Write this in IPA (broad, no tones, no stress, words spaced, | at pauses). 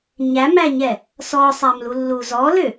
ɲæmæɲɛ | sɔsˤæm lulːuz ɔlø